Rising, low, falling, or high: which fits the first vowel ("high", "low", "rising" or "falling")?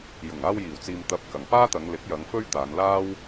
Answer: low